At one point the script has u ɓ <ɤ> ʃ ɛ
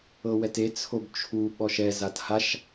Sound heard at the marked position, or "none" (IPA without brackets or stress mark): ɔ